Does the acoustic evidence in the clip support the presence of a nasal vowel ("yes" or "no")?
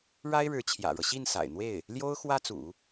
no